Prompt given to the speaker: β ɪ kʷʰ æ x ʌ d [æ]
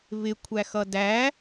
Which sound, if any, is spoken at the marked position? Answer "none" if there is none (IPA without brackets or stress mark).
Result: æ